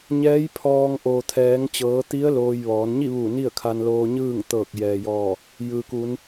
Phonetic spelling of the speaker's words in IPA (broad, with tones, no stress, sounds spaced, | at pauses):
ɲ ɛː˧˥ j pʰ ɔː˧ ŋ ʔ oː˩ t̪ʰ ɛː˩˧ ŋ t͡ɕ ɤː˩˧ t̪ i˧˥ ə̯ l oː˧ j ʋ ɔː˩˧ n ɲ i˥˨ ʋ u˧˩ n i˥˨ ə̯ kʰ a˧ n l oː˧ ɲ ɯː˥˨ ŋ t̪ ɤː˧˩ k̚ j ɛː˩ j ɔː˧˩ | j ɯː˩ k u˩˧ n